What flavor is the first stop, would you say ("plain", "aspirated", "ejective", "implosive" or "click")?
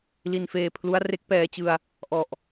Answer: aspirated